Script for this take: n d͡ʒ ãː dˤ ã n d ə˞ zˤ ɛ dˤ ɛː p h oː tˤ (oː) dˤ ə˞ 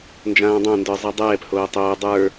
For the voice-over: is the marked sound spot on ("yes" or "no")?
yes